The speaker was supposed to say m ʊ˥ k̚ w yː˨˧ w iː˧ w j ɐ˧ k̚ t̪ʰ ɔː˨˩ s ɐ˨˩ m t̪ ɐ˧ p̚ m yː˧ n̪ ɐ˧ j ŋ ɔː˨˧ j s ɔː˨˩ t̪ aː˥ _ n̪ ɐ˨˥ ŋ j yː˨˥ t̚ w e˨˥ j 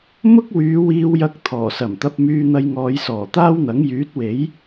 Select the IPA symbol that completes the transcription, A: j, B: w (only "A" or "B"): B